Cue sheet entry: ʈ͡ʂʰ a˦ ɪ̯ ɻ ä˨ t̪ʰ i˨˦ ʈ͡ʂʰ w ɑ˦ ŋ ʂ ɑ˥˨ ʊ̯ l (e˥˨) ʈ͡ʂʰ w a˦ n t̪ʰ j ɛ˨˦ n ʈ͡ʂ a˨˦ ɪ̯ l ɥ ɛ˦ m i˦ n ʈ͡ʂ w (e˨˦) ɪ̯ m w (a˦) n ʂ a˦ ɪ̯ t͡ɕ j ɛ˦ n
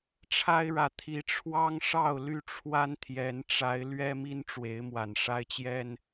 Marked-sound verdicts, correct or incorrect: incorrect, correct, incorrect

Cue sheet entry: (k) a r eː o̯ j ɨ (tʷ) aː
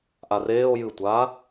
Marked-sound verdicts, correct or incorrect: incorrect, correct

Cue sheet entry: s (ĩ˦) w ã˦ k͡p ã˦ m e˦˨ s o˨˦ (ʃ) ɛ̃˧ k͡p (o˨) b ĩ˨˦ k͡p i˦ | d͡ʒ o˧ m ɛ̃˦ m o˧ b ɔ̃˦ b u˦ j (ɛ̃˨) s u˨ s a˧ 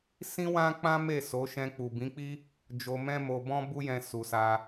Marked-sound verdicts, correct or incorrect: correct, correct, incorrect, incorrect

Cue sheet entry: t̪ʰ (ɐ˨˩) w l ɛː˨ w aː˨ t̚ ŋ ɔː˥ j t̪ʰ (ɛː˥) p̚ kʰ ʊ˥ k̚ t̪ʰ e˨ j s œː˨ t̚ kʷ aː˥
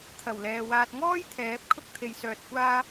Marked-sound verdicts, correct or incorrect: correct, incorrect

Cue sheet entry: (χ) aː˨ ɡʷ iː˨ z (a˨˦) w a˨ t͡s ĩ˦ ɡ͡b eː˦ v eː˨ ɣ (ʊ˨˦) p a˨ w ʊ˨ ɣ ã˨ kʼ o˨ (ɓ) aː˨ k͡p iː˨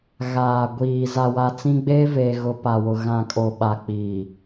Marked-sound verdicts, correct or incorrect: incorrect, incorrect, correct, correct

